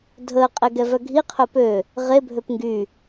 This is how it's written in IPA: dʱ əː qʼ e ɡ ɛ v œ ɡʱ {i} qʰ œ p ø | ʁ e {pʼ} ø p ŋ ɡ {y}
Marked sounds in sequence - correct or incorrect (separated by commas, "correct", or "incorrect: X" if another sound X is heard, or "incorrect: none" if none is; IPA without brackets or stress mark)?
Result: correct, incorrect: bʱ, correct